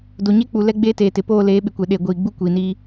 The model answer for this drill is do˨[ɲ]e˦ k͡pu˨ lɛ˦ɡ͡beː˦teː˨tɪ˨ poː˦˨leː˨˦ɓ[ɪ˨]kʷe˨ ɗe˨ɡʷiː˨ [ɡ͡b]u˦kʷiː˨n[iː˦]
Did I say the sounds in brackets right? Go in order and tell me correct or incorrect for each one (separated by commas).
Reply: correct, correct, correct, correct